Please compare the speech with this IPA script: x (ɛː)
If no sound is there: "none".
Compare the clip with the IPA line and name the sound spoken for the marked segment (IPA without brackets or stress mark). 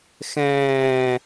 ɛ̃ː